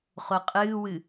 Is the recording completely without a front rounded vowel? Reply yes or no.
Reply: yes